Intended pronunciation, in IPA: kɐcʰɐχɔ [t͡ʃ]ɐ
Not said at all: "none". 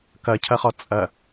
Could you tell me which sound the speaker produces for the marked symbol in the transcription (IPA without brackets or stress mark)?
t͡sʼ